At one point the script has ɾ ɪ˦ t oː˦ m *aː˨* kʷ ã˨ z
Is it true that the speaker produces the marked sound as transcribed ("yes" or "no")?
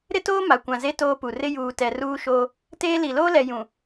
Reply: no